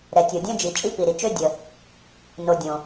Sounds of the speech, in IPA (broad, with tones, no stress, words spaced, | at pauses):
ɾɛ˩tʲo˩ dʲœ̃˥d͡ʒi˩ t͡ʃʼi˥pi˩ɾi˩t͡ʃø˥ dʲə˩ | no˩ dʲõ˩